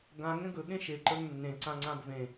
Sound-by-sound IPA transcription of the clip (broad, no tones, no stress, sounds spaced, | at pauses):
ɡ ã ŋ ɛ̃ ɡ ɵ ɠ ẽ ʃ e ǃ ə˞ ŋ nː ẽ ǀ ã ŋ͡ǀ ã b v ẽ